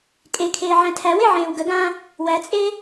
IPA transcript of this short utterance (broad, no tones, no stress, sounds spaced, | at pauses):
kʼ e kʰ eː ʕ æ̃ tʰ æ w e ʕ ẽː w ɡ ə ɡ ãː | w æ t͡sʼ eː